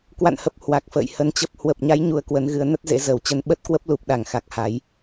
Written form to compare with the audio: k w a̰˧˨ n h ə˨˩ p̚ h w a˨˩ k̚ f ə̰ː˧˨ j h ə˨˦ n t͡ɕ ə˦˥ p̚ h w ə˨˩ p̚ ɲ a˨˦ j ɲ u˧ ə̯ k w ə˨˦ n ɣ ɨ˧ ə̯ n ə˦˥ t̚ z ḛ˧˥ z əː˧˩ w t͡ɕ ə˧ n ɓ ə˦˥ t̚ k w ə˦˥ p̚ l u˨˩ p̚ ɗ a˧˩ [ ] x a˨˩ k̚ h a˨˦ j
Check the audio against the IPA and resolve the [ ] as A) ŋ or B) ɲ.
A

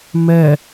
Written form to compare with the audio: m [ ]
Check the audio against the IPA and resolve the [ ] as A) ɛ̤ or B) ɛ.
B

